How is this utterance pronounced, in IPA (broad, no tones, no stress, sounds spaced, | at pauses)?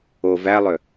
o v æ lˠ ø